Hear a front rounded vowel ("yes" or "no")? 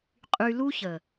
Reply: yes